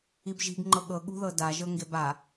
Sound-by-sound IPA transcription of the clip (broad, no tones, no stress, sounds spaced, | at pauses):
i b ʒ i̤ ɡ ŋ͡ǃ ɤ ɠ ɤ ɠ ṳ ð ɤ d a ʒ ɤ ŋ ɡ e b a